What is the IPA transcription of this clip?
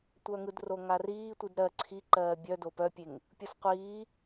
tʷ œ ŋ ɯ d r o ŋ a r iː tʷ ɨ d ɾ ɜ ǀʰ i ǃ ɜː bʲ œ d o p œ pʲ e ŋ | pʲ ɯ s qʷ iː

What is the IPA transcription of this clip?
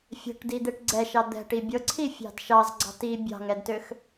fʲ ɛ̤ ʈ d i d̪ e ʈ ɡ͡ǀ ɛ ʃ ɑ d̪ ɛ̤ ʈ i bʲ ɤ ǀʰ i fʲ ɑ̤ d ʃ ɑ z ɡ͡ǀ ɑ̤ t i bʲ ɑ̤ ŋ ɛ d t ø x

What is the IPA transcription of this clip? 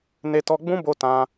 n e˧ t ɔ˧ ɡ͡b ũ˦ b o˧ t ã˧

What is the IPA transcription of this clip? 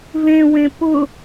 v ẽ w ẽ p ʊ

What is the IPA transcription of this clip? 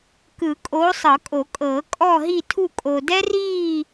k ɯ˨˩˦ kʼ oː˨˦ sˤ ɤ˨˩˦ kʼ o˨˩˦ kʼ ɤː˨˩˦ kʼ ɔ˦˨ ɦ i˦˨ tʰ u˦˨ kʼ o˨ d ɛ˦ r iː˦˨

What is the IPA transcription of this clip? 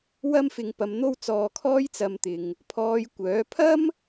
w ɐ˥ m f ɪ˨ ŋ p ɐ˧ m n̪ o˥ w t͡s ɔː˧ kʰ ɔː˥ j t͡s ɐ˧ m t̪ ɪ˨ ŋ | pʰ ɔː˧ j kʷ œː˨˥ pʰ ɐ˥ m

